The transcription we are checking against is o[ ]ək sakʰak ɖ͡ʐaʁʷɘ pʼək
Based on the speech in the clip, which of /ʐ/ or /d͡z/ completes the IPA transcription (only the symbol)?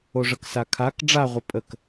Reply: ʐ